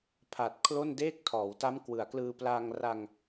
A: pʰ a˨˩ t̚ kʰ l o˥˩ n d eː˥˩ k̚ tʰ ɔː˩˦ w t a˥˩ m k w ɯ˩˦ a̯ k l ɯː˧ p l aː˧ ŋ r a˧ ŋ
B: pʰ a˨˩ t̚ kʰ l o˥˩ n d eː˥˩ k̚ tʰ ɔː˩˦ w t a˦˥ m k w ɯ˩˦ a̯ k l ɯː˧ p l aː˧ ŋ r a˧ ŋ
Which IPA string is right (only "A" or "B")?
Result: B